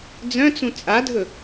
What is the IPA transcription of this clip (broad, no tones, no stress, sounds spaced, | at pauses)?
d͡z œ̃ t͡s ũ t͡sʼ a dʱ ɵ